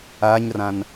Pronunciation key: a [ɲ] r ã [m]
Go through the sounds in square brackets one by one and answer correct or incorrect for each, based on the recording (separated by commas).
correct, incorrect